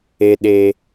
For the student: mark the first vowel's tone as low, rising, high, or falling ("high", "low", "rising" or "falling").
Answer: high